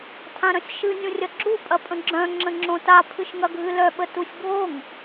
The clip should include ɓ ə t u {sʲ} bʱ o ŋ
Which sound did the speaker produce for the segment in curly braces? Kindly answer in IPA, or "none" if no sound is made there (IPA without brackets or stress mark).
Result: sʲ